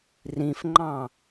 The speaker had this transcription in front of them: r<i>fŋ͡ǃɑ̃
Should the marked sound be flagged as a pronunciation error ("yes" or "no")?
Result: yes